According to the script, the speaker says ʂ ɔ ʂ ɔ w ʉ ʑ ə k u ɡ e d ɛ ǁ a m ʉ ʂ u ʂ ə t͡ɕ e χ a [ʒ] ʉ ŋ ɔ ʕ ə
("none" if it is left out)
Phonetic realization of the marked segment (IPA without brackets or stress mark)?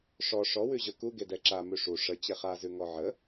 z